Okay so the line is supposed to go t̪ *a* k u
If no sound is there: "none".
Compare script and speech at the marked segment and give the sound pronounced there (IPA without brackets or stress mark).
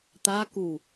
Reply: a